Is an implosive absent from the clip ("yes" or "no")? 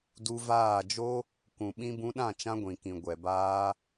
no